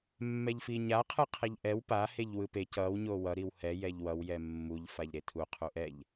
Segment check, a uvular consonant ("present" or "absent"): present